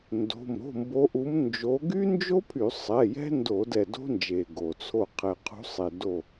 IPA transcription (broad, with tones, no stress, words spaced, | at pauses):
ndo̤˩˧˩m ɾo̤˩˧˩mbo˨˦ ʔu˨˦mnd͡ʒo˨˦ ɡy˥nd͡ʒo˥pʰy˧˩˧ sˤɛ˩˧˩jɛ̤˥ ndo˧˩˧ dɛ˧˩do̤˥nd͡ʒe˩ ɡo˩t͡sʰo˧˩ qʰɛ˩qʰṳ˨˦sˤe˩ do˧˩